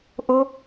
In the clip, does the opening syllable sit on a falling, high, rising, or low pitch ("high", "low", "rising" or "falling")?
high